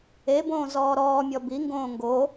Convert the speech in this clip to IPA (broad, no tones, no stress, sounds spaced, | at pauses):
e b õː z ɔː ɾ ɔː mʲ ɔ b i ŋ ɡ õː ŋ ɡ o